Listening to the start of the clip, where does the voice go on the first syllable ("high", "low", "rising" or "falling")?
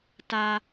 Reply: high